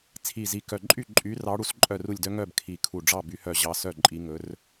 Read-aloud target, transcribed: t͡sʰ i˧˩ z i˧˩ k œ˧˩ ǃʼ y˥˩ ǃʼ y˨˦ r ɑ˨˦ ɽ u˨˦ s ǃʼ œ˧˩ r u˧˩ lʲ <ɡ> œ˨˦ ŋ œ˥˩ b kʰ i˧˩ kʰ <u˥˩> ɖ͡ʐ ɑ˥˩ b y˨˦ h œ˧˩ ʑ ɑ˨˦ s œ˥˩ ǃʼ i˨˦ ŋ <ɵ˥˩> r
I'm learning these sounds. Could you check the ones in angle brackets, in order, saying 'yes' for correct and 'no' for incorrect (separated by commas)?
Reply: no, no, no